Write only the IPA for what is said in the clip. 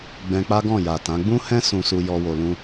ɡ͡b ɛ̃˧ k͡p a˦ ɡ ɔ̃˦˨ j a˨ t ã˨˦ ɡ͡b ũ˦ h ɛ̃˦ s ũ˧ s u˧ j ɔ˧ w o˨ l ũ˧

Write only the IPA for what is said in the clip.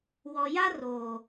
w ɔ˨ j a˦ r oː˨

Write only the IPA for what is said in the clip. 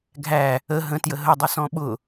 ɡʱ æ | ə ɦ ə̃ t j ə ɦ ə dˤ ʊ s ɔ̃ ɓ ʊ

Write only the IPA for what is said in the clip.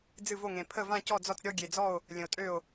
d͡z ɨ˥˩ v o˥˩ ŋ ẽ˨˩ pʰ ə˥˩ v ã˥˧ c ɔ˥˩ d͡z ɔ˥˩ t͡s ɾʲ ɔ˥˧ ɡʲ e˨˩ d͡z ɔ˥˩ o̯ | lʲ ə̃˨˩ o̯ tʼ ø˥˩ o̯

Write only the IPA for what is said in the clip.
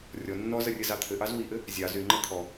rʲ ɔ nː ɔ z ə rʲ ɘ z ɑ t̪ʰ ɘ ʔ ɑ z w i ʔ ɘ | zʲ ɑ z y ŋ͡ǃ ʌ t̪ʰ ɔ

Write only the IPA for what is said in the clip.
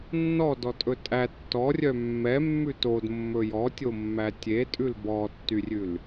nː ɔ d ɔ tʼ ɵ tʼ æ tː ɔ rʲ œ mː ɛ mː ʉ t o d mː ɵ j ɔ tʲ o mː æ tʲ e tʼ ʉ l b ɔ tː y rʲ ʉ l

